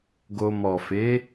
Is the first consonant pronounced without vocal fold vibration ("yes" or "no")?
no